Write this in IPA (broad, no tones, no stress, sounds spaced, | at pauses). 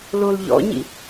l o l ʎ ɔ̰ ɲ ḭ